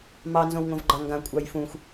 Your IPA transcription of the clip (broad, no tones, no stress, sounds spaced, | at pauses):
m ɑ n z õ w ŋ õ v ɡ͡ǃ ɑ ŋ ɡ ã kʷʼ ɑ j f ũ xʷ